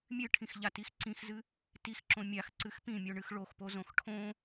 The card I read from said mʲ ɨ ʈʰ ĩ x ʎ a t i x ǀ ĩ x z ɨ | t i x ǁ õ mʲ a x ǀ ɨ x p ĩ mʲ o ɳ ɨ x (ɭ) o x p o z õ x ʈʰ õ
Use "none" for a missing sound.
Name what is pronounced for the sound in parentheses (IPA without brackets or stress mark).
ɭ